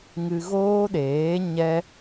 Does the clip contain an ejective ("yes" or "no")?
no